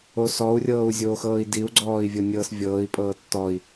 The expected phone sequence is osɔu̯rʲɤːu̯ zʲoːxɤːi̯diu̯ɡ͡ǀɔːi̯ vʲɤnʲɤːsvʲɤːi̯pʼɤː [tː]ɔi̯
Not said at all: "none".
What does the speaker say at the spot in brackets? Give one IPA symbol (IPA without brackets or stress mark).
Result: tː